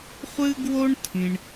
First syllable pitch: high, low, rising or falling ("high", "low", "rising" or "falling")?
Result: high